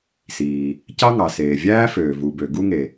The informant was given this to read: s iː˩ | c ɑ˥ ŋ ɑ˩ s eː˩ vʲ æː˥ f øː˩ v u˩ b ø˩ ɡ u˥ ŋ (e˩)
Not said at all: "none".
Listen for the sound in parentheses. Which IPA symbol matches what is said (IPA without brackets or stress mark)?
e˩